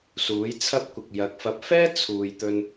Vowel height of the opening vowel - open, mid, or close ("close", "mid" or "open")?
close